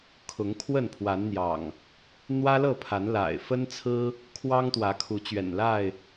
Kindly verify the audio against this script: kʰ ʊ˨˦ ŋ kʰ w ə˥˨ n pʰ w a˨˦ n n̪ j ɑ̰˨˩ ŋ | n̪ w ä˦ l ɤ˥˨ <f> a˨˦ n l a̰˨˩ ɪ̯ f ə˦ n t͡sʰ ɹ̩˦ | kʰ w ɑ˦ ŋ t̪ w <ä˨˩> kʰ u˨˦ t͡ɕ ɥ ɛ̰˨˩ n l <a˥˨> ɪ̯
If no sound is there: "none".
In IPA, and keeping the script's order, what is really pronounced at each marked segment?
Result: pʰ, ä˨˦, a˥˨

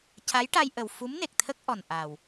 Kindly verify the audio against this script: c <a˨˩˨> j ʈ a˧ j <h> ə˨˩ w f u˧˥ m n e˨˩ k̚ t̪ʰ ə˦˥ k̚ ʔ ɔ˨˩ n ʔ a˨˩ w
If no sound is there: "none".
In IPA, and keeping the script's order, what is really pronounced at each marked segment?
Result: a˧˥, ʔ

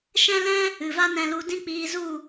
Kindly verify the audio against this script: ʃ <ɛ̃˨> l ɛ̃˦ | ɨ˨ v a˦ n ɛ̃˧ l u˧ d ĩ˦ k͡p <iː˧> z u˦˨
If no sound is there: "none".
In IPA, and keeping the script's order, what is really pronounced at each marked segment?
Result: ɛ̃˦, iː˧

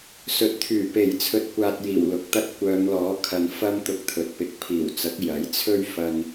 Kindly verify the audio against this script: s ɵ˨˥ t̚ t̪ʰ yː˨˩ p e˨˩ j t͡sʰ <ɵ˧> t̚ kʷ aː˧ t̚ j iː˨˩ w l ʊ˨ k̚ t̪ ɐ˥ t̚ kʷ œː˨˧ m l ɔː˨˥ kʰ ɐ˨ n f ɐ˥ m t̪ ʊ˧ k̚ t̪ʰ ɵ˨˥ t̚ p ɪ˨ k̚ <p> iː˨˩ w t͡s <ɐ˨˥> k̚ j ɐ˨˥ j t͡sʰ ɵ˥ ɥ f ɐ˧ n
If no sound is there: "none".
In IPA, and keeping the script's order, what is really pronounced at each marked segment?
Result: ɵ˧, pʰ, ɐ˨˥

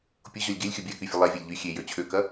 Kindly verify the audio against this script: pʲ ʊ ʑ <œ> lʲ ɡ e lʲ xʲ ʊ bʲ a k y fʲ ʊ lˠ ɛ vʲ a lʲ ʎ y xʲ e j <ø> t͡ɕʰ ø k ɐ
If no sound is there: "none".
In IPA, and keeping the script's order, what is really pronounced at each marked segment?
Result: œ, ø

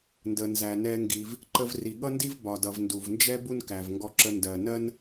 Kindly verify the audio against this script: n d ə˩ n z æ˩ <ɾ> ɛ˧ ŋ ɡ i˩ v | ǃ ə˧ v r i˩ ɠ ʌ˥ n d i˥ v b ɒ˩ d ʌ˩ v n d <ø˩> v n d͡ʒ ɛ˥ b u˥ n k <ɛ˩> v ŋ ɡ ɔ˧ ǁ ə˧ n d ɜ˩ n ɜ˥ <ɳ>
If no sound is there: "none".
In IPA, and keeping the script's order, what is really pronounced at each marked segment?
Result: n, u˩, æ˩, n

